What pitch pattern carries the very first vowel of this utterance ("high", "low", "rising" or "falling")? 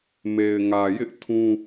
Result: low